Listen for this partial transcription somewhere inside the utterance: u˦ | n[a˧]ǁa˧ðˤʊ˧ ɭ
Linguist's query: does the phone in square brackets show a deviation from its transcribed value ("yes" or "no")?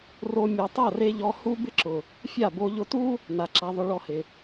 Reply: yes